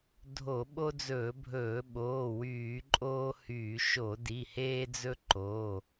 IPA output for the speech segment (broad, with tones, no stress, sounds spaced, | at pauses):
dʱ o˧˩˧ ɓ o˦ d͡z ɵː˧˩˧ bʱ ɵː˧˩˧ ɓ oː˩˧˩ w yː˧˩˧ ǃʼ oː˦ h yː˧˩˧ ʃ o˧˩˧ d i˩˧˩ h eː˦ d͡z ɵ˦ ǃ o˩˧˩